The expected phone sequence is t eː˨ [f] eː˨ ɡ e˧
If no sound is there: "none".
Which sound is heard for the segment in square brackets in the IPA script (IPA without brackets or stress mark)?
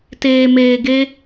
m